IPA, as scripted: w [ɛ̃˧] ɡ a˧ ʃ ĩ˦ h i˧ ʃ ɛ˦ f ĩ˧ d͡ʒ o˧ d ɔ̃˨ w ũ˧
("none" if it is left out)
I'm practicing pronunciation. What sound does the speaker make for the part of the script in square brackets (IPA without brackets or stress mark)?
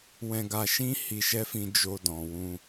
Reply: ɛ̃˧